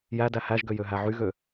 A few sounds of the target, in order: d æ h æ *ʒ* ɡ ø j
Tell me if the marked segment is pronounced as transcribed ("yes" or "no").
yes